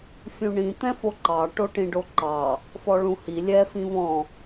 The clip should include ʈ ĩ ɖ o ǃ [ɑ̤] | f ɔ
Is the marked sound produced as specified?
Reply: no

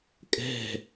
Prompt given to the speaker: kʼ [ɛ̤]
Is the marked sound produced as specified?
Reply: yes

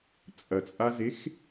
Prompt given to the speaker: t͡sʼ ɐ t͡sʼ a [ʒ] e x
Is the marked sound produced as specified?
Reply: no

